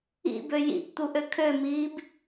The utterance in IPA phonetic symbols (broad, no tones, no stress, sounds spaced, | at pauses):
ḭ b ø j ḭ ʔ t̪ u ʔ ø kʰ ø m iː b